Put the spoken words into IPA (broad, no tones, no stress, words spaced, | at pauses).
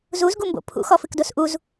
zuzɡumbo̰ pʰṵxɔfɨkdos ʔuz